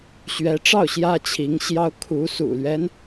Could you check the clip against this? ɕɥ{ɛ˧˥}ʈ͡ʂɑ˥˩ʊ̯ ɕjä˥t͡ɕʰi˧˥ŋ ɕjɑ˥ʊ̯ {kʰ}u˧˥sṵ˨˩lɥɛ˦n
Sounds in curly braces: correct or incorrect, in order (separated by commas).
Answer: correct, correct